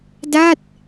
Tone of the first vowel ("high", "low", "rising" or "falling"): falling